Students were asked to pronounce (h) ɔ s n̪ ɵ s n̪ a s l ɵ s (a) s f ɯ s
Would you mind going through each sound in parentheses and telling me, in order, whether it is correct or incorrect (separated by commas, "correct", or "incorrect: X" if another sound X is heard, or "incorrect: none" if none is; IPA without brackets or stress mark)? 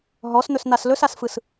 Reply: incorrect: ɦ, correct